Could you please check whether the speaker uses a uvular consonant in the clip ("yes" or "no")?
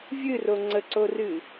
no